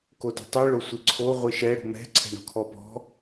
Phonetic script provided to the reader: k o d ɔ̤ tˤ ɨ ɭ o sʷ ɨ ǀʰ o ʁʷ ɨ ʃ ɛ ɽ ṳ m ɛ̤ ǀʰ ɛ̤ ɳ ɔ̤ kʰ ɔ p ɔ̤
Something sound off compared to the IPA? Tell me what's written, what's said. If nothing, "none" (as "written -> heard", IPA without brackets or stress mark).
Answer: none